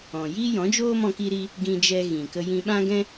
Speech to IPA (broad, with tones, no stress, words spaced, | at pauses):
ɔ̃˨ jiː˦jɔ̃˨˦d͡ʒoː˦ mɔ̃˦ki˦ɾi˦ | ɡĩ˧d͡ʒɛ˧ ɣĩ˨kə˧ jĩ˧ɓã˦ɡɛ̃˦